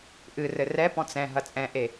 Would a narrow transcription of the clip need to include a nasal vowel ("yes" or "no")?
yes